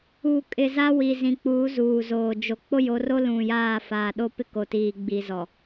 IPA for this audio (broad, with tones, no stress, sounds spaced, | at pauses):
uː˨ kʼ ɪ˨ z a˦ w i˨ z ĩ˨ k͡p uː˨˦ z uː˨ z oː˨ d͡ʒ o˨ k͡p o˦ j o˨˦ r o˦ l ũ˨ j aː˦˨ f aː˨ ɗ o˦ p ɪ˦ k o˨ t iː˨ ɡ͡b i˨ z ɔ˨